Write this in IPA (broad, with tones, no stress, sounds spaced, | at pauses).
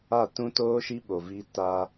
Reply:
a˦˨ t ũ˦ t oː˦ ʃ i˦ ɓ o˨ v i˦ t a˦